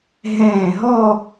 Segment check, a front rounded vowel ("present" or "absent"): absent